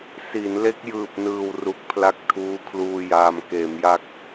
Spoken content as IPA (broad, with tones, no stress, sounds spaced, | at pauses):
s i˩˦ n l e˦˥ k̚ j ɯː˨˩ p̚ n ɯː˨˩ w r u˨˩ k̚ pʰ l a˦˥ k̚ tʰ uː˦˥ kʰ l uː˧ j aː˧ m k eː˩˦ m j a˦˥ k̚